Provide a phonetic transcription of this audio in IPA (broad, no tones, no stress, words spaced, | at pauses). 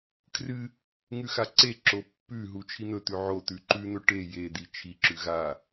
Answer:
kʰrɨ | ŋʉxaǀeǁo pːʉ ɦut͡ʃʰin̪ɵt̪ʉ ʕo t̪ʉǃʉn̪ɵ ʈe jed̪i t͡ʃʰiǁʉ ɣa